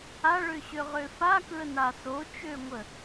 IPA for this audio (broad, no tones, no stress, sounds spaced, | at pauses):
a ɭ ø ɕ ø ʁ ø f a k ɹ ə n a s o t͡ʃ ø ŋʷ ə